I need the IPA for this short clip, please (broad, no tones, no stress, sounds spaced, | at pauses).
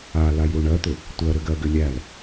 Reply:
a l a j ɾ u ɳ ɜ t̪ ʏ | tʷ ɜ ɾ ʏ ɡ ɜ ɡ ʏ lʲ æ l